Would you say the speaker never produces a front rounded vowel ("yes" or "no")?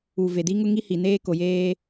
yes